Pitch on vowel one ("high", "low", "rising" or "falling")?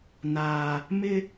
low